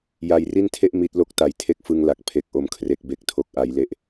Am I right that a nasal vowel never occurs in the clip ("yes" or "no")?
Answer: yes